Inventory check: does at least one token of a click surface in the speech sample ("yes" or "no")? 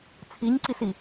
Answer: yes